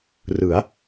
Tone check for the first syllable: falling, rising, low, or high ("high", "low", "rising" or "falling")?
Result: rising